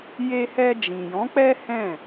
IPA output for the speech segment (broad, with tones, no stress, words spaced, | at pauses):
je˧hɛ˧ d͡ʒĩ˨jɔ̃˨˦k͡pɛ˦hɛ̃˦˨